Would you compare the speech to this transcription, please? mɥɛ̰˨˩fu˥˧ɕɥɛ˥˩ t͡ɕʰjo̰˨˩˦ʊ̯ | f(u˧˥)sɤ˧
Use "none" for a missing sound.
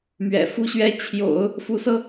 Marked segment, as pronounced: u˧˥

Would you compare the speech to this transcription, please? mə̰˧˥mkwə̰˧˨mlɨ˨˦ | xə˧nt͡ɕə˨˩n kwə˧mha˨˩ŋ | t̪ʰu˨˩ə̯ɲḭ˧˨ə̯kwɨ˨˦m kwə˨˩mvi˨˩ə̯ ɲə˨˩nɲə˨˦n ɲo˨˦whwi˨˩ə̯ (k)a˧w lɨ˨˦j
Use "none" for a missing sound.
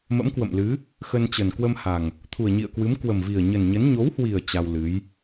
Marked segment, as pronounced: t͡ɕ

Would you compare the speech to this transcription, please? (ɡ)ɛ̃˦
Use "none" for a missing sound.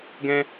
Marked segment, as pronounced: ɡ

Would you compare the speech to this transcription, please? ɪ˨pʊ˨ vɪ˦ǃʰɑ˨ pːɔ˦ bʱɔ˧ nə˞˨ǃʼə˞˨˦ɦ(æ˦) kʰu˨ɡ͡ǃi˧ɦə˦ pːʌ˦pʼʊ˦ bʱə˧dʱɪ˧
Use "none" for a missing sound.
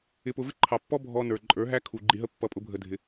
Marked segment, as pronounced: æ˦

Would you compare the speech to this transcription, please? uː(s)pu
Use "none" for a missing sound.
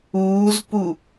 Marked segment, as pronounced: z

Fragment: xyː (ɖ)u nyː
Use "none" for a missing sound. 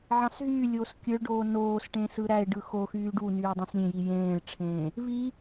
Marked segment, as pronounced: ɖ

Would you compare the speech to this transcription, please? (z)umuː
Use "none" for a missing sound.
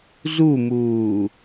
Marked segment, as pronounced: z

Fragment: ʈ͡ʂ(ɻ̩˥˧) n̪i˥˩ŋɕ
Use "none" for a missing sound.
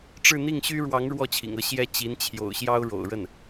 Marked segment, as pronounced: ɻ̩˥˧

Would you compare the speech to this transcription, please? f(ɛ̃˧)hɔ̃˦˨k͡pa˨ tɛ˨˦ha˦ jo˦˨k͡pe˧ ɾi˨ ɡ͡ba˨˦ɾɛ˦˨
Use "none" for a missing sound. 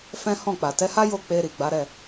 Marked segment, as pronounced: ɛ̃˦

